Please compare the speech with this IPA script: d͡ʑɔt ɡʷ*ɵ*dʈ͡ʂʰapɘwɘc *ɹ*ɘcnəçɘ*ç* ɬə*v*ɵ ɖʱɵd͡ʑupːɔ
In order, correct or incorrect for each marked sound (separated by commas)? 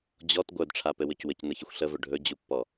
incorrect, incorrect, incorrect, correct